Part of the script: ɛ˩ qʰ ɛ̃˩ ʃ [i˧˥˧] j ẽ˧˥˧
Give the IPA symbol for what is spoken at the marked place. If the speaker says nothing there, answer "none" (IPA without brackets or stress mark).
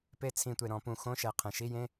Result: i˧˥˧